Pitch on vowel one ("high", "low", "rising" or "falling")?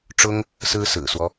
high